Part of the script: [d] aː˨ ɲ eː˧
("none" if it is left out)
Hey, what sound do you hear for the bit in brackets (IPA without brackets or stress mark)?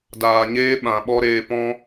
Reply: d